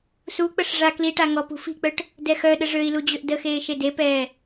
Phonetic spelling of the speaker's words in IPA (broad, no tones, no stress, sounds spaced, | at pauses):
s u k͡p ə ʂ ʐ a k l i ʈ a ŋ ɔ p ṳ f i̤ k͡p œ ʈ | d ɛ x œ ɗ ə ʐ ø i̯ l u d͡ʑ ø ʔ d ə x eː ʃ e d e p ɛː